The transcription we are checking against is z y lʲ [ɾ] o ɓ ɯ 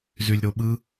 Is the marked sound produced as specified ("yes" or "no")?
yes